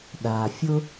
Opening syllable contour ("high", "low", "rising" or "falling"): low